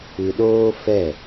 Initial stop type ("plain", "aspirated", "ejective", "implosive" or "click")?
implosive